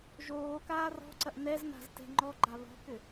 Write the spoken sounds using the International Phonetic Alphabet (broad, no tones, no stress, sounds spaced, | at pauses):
ʒ oː k aː r ɔ̤ ǀ ɐ ʔ n ɛ z n a̤ z t ɛ̤ ŋ͡ǃ ɔ ɡ͡ǃ a β ɔ̤ k ʏ